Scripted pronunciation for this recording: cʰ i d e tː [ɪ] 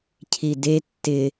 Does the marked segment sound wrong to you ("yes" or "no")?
no